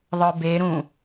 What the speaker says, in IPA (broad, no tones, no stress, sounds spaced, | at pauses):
ðˤ ə˞ b e ɾ ũ